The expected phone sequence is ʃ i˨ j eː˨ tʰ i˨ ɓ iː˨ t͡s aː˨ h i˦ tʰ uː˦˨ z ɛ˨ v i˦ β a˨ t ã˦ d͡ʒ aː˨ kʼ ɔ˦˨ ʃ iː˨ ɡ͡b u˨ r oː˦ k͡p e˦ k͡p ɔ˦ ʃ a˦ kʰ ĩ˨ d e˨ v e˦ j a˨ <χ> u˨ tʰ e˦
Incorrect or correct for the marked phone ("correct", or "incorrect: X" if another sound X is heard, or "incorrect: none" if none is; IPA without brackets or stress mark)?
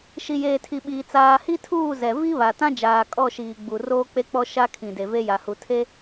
incorrect: h